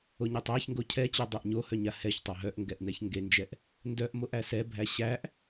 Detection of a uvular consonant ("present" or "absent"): absent